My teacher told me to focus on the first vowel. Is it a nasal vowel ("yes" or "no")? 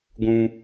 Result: yes